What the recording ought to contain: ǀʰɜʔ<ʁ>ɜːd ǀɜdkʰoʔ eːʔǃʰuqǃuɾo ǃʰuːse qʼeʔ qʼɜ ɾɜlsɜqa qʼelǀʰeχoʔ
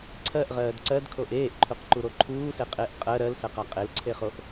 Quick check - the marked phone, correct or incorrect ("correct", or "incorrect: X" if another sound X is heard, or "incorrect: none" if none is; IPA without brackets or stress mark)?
correct